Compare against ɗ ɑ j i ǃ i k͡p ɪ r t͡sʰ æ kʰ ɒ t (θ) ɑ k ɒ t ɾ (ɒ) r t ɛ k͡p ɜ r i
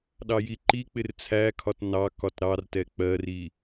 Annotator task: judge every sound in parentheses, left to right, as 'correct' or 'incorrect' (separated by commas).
incorrect, incorrect